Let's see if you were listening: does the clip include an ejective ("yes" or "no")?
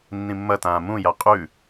yes